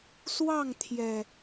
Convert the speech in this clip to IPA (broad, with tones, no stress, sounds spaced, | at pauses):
s w ɑ˥˨ ŋ t̪ʰ j ɛ˨˩